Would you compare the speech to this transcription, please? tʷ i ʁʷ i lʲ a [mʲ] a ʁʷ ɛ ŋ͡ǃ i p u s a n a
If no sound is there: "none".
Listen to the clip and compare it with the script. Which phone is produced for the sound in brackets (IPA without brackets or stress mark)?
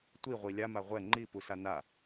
m